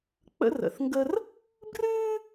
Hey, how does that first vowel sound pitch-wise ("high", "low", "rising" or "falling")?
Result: high